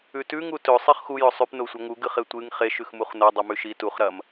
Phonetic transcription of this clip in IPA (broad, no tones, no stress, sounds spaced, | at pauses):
ʉ t ʉ ŋ u t ɵ sˤ i χ x u j ɵ sˤ ʉ p n o sʷ ɐ ŋ u ɡ ɨ χ e tʷ ɨ ŋ χ e ʃ ʉ x m u χ n o dˤ ɨ m ʉ ʃ i t u χ ɾ ɐ m